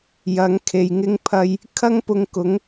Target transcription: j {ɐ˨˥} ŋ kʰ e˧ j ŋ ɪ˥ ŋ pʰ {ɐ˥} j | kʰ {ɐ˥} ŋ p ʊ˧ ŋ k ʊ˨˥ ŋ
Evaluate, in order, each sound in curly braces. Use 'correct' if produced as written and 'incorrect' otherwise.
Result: correct, correct, correct

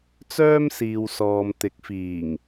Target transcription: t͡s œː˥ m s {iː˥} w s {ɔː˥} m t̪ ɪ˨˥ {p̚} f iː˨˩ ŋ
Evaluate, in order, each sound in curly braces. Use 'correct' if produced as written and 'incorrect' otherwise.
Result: incorrect: iː˨, incorrect: ɔː˨, incorrect: k̚

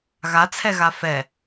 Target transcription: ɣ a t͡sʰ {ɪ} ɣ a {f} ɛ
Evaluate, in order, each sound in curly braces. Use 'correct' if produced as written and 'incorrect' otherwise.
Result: incorrect: ɛ, correct

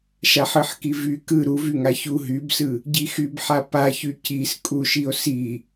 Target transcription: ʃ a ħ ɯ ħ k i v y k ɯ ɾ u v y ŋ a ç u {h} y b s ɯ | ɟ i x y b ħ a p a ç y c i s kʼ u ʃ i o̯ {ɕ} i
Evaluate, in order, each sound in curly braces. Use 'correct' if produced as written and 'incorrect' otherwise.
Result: incorrect: ɦ, incorrect: s

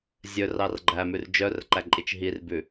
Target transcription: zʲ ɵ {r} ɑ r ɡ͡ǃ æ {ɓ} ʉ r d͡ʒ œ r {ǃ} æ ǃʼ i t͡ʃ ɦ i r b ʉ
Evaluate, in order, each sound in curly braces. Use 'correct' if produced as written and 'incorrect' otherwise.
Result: correct, incorrect: m, correct

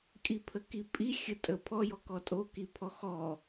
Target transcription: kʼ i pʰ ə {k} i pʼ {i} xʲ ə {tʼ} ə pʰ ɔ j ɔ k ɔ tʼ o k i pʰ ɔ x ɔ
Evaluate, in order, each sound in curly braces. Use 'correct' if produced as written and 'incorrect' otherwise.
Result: correct, correct, correct

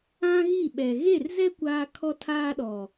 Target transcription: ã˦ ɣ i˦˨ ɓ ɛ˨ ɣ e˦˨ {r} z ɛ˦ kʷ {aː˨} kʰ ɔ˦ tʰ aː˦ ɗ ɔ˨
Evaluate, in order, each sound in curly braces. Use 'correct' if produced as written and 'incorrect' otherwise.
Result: correct, incorrect: aː˦

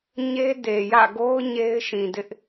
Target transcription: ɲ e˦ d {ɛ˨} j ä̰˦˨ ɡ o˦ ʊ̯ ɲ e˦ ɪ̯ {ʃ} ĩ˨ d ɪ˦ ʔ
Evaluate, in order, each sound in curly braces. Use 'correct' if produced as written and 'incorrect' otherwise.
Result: incorrect: e˨, correct

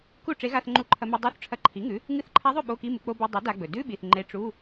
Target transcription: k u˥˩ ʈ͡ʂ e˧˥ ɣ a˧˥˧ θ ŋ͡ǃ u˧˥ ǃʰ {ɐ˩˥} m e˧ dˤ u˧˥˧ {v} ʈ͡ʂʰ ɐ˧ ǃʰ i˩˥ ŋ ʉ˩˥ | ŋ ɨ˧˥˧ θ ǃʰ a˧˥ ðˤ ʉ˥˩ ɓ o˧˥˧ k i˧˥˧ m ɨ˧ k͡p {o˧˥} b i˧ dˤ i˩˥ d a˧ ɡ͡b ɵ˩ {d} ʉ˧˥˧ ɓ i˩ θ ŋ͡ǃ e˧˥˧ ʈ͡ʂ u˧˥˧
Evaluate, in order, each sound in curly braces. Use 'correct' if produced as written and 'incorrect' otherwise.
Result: incorrect: ɐ˧, incorrect: θ, incorrect: o˧, correct

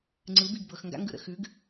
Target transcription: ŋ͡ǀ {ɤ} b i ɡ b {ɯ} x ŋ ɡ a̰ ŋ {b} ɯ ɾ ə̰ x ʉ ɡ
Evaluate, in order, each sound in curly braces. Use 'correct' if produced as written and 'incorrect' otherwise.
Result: incorrect: ɯ, incorrect: ɤ, incorrect: ɡ

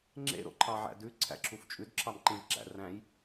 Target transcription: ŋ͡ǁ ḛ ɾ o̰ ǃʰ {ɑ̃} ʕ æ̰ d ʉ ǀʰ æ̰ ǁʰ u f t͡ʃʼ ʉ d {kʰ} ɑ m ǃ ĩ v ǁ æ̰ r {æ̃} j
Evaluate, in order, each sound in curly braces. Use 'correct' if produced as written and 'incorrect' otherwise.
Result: incorrect: ɑ, incorrect: ǁʰ, correct

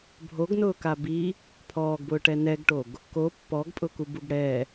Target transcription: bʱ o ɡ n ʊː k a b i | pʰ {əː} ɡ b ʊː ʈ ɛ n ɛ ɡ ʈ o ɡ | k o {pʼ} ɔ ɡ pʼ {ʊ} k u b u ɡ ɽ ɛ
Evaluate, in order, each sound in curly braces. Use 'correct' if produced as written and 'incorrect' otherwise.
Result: incorrect: ɔː, incorrect: pː, correct

